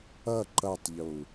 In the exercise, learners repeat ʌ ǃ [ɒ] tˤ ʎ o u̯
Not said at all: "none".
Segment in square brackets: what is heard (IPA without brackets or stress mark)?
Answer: ʌ